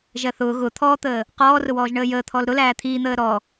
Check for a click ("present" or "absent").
absent